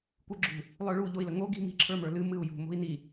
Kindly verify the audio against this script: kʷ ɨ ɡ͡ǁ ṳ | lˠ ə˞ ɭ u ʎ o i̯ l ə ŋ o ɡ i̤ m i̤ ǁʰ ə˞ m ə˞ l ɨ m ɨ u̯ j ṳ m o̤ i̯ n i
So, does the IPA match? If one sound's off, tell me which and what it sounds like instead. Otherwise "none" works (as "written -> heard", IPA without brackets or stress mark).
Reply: none